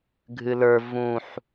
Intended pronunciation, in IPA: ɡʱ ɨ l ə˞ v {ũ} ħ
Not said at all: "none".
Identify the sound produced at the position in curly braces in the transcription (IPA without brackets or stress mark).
ũ